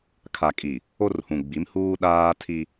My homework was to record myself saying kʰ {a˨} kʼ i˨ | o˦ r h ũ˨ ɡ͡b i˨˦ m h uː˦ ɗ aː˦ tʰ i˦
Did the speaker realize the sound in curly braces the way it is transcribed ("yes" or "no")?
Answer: yes